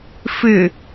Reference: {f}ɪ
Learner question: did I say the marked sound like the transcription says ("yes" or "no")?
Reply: yes